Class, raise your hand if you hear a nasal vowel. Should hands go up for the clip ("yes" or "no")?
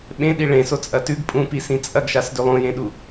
yes